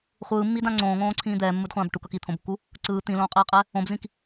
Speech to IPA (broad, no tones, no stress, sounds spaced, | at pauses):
χʷ ɯː mː i d ã ŋ͡ǀ õː ŋ õː ǀʰ ĩː d̪ ɛː mː u d χʷ ãː b ʈ u k ʌ k i t̪ʰ õ b kː u | ǀ ɯː t̪ ĩ l õː qʼ eː qʼ ɛ | õ b z ĩ k